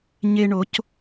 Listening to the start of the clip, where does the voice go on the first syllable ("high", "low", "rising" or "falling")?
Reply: high